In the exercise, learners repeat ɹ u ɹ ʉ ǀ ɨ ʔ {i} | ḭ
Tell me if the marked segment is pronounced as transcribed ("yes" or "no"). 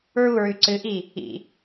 yes